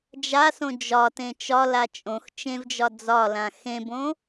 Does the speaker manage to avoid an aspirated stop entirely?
yes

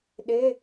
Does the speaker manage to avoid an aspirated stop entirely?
yes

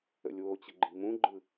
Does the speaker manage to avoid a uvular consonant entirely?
yes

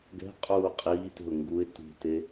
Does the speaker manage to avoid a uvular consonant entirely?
no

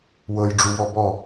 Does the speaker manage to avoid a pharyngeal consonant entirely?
yes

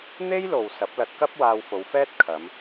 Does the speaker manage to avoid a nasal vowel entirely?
yes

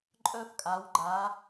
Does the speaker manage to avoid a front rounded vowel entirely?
no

